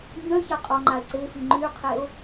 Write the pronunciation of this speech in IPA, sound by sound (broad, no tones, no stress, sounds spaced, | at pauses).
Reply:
ɲ œ ç a qʼ ɔ ŋ͡ǃ a e̯ ǀ e f i ŋ͡ǃ y qʰ e o̯